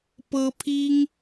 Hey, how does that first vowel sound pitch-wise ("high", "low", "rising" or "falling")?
high